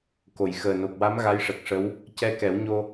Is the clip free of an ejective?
yes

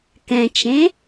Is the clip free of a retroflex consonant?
yes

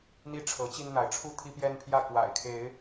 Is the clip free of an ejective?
yes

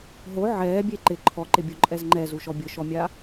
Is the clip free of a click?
no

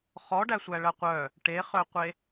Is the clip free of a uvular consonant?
no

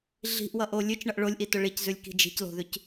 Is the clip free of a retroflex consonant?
no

